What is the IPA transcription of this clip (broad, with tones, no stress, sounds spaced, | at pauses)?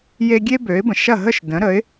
j e˥ ɡʲ e˥ b ø˩˥ ɪ̯ b ə̃˩ ʃ ɐ˥˩ ɦ ə˥˩ ʃ d ə̃˩˥ ɾ ə˩˥ ɪ̯